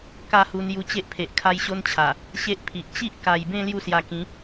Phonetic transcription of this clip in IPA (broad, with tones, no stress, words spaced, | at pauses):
ka˥˧ hu˧nju˧t͡ɕe˦ʔpʰe˨ʔ kʰa˦jɕo˦nt͡ɕʰa˨˩ | ɕe˦ʔpʰi˨ʔ t͡ɕi˦ʔka˨˩jbẽ˥˧ lju˥˧sja˧kĩ˨˦